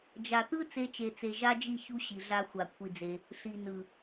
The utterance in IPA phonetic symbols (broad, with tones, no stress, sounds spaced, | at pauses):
d͡ʒ a˨ t̪ ɯ˦ t͡s e˧ t͡ʃ e˨ t͡s e˨ ʒ a˦ d͡ʒ i˦˨ ç u˦ ɕ i˨ ɮ a˧ xʷ a˨ kʷʰ i˧ d͡z e˧ | ɬ i˨ n ɯ˨